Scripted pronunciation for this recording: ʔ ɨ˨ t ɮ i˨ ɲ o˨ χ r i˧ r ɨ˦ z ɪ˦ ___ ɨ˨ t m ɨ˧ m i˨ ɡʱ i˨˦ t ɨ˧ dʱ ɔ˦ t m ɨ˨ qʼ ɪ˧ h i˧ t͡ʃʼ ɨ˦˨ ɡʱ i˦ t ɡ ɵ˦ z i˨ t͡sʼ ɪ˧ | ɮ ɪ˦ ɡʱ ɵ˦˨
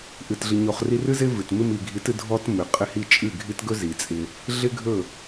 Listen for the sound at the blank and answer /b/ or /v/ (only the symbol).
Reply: v